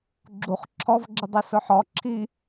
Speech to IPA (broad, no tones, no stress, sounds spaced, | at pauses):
ɡ͡ǁ u χ ǁʰ ɔ v ɡ͡ǁ ɪ dˤ i s ʊ ħ ɔ ǁʰ i